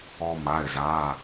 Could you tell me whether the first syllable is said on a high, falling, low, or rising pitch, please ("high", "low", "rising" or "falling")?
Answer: high